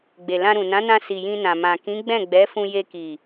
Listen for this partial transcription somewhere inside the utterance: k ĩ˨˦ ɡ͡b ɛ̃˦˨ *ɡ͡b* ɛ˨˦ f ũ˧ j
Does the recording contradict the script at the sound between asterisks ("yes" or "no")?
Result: no